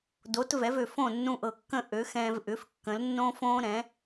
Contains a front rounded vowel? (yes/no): yes